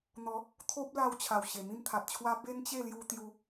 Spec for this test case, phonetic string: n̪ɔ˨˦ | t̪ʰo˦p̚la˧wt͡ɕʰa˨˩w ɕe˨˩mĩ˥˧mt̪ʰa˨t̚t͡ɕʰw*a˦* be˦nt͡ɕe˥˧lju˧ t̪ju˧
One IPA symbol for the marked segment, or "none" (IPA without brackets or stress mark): a˦